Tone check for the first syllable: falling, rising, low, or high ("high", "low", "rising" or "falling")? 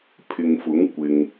low